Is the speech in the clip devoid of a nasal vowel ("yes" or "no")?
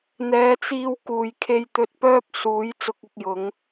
yes